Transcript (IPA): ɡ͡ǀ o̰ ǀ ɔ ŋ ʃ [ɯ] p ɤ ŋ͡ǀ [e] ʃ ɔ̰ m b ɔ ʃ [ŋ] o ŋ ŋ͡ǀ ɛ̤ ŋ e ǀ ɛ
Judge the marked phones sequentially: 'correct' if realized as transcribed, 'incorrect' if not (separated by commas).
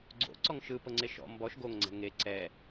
correct, correct, incorrect